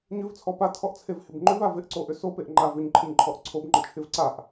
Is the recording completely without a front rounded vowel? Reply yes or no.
no